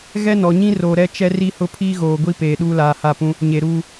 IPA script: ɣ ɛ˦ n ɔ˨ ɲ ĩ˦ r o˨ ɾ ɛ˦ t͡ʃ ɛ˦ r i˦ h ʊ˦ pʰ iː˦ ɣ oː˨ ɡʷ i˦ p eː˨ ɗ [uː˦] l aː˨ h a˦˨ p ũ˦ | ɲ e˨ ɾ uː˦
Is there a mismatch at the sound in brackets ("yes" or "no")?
no